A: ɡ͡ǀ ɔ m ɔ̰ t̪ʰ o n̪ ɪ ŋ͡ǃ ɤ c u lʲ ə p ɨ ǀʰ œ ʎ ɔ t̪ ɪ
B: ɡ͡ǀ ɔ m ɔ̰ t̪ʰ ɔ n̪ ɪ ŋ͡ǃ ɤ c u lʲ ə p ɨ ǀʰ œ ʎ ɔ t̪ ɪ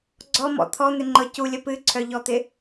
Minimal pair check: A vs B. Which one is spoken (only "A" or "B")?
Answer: B